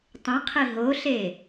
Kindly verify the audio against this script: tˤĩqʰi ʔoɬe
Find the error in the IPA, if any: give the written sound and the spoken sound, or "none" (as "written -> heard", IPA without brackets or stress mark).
ʔ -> ɦ